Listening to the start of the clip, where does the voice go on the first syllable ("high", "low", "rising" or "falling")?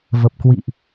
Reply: low